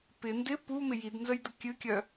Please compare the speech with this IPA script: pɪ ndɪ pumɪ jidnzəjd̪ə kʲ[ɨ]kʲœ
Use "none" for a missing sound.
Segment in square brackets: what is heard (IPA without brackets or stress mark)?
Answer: ɨ